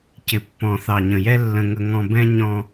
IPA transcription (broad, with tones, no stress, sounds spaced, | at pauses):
c ɪ˨ pː ɔ̃˨ θ ɑ˨ ɲ ə̃˨ j ɛ˦ lː ə̃˧ ŋ ə˧ ŋ ɔ̃˧ b ɛ̃˦ ɲ ɔ̃˧